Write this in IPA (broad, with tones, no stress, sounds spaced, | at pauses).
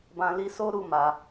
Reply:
b ã˨ l i˨˦ s o˦ ɾ u˦˨ m a˨